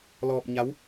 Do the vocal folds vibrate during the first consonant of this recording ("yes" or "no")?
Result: yes